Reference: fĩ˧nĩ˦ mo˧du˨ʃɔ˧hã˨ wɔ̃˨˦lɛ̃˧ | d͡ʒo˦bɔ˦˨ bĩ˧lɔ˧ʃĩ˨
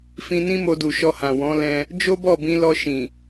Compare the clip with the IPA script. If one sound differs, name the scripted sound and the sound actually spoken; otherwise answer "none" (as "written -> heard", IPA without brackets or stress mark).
none